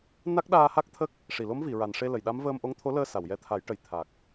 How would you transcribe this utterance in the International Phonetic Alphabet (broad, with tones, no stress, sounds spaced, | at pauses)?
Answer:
n a˦˥ k̚ ɗ aː˧ h a˦˥ k̚ t̪ʰ ə˦˥ k̚ | ʂ i˨˩˨ l o˧˥ m v i˨˩˨ ɹ a˨˩ n ʂ e˧ l ə˨˩˨ j ɗ a˧˥ m v əː˧ m ʔ o˧˥ ŋ t̪ʰ o˧˥ l əː˧ s a˨˩˨ w j ɛ˧˥ t̪ʰ a˨˩˦ j ʈ ə˨˩ j t̪ʰ a˨˩ k̚